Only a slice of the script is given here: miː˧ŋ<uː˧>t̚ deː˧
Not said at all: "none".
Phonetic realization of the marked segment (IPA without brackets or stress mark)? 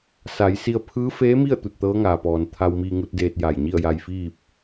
u˧